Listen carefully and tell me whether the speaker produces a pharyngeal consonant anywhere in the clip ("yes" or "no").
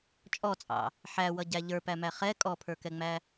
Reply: yes